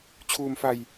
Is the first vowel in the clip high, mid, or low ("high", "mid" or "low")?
high